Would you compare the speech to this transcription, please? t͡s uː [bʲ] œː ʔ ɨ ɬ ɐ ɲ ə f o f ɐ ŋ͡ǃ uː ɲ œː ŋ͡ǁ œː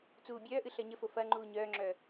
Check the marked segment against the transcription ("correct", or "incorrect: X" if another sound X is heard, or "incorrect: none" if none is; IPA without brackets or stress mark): correct